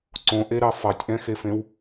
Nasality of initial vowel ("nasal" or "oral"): nasal